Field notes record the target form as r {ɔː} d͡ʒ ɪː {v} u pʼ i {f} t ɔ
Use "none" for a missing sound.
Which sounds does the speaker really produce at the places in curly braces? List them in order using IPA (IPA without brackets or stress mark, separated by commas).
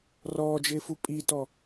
ɔː, f, none